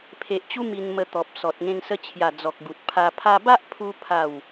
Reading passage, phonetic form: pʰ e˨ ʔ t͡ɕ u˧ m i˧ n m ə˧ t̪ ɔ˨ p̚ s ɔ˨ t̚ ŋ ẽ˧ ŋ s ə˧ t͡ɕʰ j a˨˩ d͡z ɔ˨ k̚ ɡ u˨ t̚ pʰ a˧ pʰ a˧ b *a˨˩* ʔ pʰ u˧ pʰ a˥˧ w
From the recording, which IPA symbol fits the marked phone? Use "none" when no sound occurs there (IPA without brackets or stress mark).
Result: a˦